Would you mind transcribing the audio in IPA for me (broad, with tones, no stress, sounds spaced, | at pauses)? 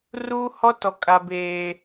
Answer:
r uː˦ h ɔ˦ t ɔ˨ kʼ a˨ b eː˨